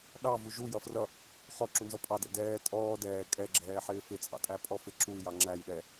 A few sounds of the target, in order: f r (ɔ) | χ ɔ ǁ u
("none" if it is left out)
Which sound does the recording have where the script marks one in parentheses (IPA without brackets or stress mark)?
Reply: ʌ